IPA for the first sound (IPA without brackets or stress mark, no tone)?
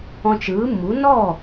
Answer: ɔ̃